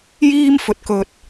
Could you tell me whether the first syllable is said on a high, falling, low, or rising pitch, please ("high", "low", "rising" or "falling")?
high